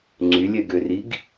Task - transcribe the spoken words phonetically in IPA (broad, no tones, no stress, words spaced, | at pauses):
ŋ͡ǀylʲɛɡøriɡ